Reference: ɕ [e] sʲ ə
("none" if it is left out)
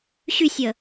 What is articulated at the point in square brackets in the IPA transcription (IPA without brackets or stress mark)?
y